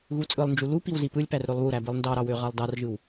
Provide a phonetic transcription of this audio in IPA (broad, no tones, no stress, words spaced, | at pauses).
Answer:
ɣut͡sʼɯlˠnd͡ʒu lu piwzipɯlʲpær ɾølˠβuɾæ bɯlˠndɑɾɑ wøʁɑlˠdɑrʒɯw